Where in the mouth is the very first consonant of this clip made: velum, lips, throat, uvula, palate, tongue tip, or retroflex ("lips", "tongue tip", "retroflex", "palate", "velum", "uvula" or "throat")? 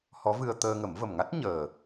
throat